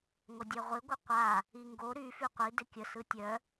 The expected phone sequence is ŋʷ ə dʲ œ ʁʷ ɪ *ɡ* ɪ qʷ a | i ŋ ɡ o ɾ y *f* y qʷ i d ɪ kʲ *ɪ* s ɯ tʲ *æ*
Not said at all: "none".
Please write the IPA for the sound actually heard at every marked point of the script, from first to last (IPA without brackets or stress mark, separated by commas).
ɡʷ, f, ə, œ